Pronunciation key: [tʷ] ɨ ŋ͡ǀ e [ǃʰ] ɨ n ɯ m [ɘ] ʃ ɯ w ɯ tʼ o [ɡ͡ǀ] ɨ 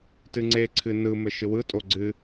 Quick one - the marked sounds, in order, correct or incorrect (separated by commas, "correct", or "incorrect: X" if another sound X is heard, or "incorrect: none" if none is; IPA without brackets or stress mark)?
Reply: incorrect: t, incorrect: ǀʰ, correct, correct